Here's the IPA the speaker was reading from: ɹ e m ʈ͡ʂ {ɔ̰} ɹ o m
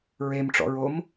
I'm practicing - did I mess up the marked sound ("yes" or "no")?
no